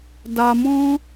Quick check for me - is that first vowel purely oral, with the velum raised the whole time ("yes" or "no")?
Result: yes